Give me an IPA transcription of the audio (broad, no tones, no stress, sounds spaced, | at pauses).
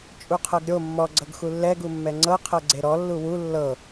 t͡ʃʼ u qʰ ɤ ɡ ɾʲ o mː ɔ ɡ͡ǀ ɤ ɡ x u lː ɛ ɡ u mː ɛ ŋ͡ǀ ɤ qʰ ɤ ɡ͡ǀ e ɾ ɔ lː u w u lː ɤ